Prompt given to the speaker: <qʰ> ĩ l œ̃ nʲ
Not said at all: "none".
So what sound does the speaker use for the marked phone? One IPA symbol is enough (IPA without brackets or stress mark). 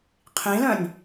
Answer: qʰ